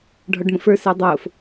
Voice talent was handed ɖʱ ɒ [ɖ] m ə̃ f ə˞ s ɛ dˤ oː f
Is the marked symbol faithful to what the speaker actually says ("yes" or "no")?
yes